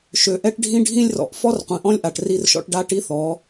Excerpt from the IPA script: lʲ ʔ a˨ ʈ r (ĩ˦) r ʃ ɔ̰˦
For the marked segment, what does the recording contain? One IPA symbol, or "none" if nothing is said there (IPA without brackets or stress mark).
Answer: i˦